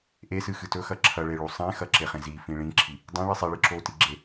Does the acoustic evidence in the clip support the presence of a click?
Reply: yes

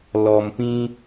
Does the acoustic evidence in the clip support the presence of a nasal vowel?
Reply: yes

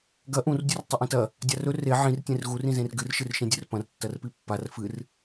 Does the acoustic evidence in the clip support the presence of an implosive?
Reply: no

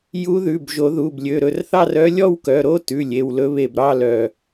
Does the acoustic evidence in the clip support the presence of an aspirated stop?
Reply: no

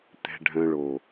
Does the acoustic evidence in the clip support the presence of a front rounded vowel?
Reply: yes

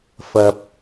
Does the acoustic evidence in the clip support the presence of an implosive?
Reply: no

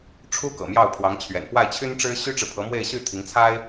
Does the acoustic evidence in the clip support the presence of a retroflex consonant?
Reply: yes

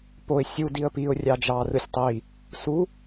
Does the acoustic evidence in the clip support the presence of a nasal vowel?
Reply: no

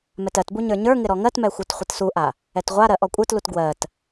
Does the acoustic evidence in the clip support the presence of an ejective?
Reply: yes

